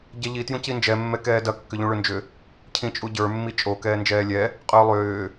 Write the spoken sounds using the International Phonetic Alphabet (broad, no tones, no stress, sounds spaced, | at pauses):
ɟ ɛ ʎ i t j ũ c i n d͡ʒ ɛ mː ɛ k ɛː d ɐ kː ʏ ʎ ũ ɭ ʏ n d͡ʒ ʏ | cʰ ĩ t͡ʃʼ u ɟ ə˞ mː i t͡ʃʼ o k ɛː n d͡ʒ ɛː lʲ ɛ | qʼ ʏː lˠ ʏː